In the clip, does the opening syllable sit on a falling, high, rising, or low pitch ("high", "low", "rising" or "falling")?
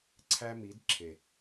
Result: high